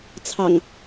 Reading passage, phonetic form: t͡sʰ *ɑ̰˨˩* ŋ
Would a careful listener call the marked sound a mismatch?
no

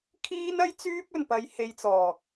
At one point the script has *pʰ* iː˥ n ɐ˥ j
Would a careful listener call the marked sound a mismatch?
yes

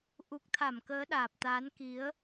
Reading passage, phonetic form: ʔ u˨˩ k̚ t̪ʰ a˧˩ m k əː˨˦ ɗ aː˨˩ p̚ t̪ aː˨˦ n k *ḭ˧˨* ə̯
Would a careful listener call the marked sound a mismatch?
yes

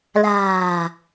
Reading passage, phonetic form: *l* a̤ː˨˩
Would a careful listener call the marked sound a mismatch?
no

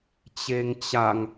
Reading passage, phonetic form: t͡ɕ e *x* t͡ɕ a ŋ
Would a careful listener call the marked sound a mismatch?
yes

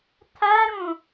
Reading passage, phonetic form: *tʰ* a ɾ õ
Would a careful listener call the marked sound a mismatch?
no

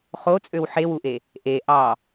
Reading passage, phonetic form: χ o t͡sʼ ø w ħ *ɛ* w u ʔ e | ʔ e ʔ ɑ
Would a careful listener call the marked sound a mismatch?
yes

